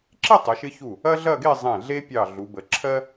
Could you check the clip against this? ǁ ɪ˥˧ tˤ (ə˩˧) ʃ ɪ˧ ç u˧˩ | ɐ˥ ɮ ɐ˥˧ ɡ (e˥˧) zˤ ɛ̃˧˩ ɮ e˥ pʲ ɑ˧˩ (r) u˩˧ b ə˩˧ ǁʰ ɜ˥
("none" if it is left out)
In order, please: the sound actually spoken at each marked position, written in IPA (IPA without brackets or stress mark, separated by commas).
ə˩˧, e˥˧, ɮ